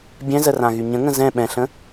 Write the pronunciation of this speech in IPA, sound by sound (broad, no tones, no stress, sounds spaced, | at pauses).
bʲ ɛ̃ z ə r ã ɣ y ɲ ə̃ ŋ ə̃ z ɛ̃ ɓ ɛ̃ ɬ ə̃